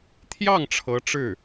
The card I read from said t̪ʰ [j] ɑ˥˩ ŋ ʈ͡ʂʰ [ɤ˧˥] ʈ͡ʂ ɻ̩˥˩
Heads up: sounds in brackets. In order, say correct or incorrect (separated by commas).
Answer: correct, correct